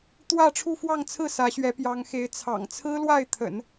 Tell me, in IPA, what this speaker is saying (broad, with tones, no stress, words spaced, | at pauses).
t̪wä˥˧ʈ͡ʂʰu˥˧fwɑ˥˧ŋt͡sʰɹ̩˥˩ sä˧˥ɕɥɛ˧˥pjɑ˧˥ŋxe˧˥ɪ̯ t͡sʰɑ̰˨˩ŋt͡sʰɹ̩˥ lwa˥˩ɪ̯t̪ʰə̰˨˩˦n